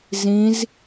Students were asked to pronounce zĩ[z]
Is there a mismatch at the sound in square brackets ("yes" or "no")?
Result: no